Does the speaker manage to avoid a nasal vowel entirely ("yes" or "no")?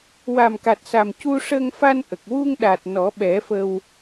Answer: yes